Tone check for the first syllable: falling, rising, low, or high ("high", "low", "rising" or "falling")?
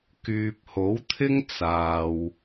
low